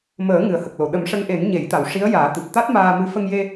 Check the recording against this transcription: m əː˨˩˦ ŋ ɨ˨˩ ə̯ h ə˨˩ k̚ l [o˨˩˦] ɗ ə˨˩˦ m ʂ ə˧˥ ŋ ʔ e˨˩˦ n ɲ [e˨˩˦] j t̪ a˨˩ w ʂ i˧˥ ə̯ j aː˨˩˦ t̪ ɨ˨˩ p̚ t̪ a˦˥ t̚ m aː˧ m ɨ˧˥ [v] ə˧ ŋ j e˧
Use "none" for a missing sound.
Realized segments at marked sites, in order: o˨˩˨, e˨˩˦, f

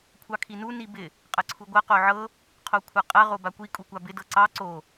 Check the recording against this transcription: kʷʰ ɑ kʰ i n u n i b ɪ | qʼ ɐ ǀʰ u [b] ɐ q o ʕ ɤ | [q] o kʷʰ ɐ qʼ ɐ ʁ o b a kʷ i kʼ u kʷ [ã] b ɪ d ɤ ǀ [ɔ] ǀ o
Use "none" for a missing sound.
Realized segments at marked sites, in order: ɡʷ, qʰ, a, ɑ

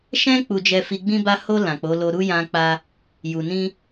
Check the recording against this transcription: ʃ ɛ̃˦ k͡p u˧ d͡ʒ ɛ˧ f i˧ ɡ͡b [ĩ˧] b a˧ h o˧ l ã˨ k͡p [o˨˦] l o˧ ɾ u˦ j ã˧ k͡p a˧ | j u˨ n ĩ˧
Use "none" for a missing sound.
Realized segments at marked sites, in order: ĩ˦, o˨˦

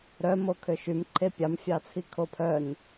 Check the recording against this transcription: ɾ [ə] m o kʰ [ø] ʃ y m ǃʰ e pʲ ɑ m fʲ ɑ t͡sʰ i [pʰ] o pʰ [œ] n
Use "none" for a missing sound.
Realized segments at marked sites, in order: œ, ø, kʰ, œ

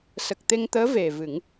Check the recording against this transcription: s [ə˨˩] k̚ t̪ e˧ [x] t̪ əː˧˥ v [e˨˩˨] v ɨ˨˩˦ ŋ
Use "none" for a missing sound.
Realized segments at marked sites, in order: ə˨˩, ŋ, e˨˩

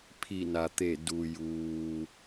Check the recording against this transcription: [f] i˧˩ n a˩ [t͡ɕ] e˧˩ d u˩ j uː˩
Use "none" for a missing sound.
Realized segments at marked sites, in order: pʰ, t̪

